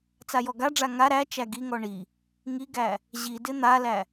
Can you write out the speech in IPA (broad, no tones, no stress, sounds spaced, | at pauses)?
t͡s a j ɔ ɡ a ɖ͡ʐ a ŋ a ɾ æ t͡ʃ æ ɡ i ŋ ɔ ɳ i | ŋ i ɡ æ | ʑ i d ɪ n̪ a l æ